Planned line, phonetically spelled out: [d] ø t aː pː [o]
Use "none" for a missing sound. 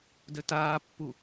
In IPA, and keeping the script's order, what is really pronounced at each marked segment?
d, u

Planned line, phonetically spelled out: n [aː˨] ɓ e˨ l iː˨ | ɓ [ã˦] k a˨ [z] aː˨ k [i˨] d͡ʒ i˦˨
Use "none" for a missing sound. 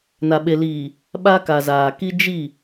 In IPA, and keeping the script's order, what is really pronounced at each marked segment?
a˨, a˦, z, i˦

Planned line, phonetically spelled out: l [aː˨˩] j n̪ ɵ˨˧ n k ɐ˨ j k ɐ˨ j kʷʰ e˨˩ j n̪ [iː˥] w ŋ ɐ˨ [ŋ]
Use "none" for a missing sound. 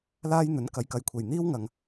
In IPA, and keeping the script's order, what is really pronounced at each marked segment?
aː˥, iː˥, ŋ

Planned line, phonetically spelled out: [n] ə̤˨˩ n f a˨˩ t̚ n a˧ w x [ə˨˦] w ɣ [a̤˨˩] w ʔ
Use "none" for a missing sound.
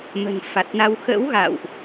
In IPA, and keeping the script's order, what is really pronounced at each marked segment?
m, ə̰˧˥, a̰˧˨

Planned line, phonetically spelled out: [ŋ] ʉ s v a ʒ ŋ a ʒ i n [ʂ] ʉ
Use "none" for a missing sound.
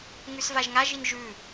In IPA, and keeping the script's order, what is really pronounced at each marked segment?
ŋ, ʒ

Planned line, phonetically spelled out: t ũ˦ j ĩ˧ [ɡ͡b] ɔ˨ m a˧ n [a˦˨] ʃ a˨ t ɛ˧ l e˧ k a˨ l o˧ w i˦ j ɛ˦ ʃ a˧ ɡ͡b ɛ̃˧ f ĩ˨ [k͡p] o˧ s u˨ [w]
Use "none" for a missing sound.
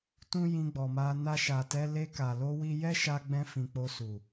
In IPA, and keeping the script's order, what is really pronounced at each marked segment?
ɡ͡b, a˧, k͡p, none

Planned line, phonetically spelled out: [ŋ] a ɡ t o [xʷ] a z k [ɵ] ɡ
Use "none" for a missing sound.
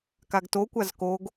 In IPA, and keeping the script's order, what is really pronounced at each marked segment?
k, kʷ, o

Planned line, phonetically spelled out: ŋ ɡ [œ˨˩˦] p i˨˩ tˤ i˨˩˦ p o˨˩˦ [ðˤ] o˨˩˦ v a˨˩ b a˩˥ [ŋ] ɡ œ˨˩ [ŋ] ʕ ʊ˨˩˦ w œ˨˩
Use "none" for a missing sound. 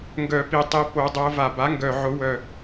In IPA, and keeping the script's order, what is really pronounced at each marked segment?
œ˨˩˦, dˤ, ŋ, none

